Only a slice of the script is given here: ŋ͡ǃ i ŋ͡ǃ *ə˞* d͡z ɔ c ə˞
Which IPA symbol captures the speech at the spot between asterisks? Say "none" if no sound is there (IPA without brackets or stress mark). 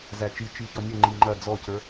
ɐ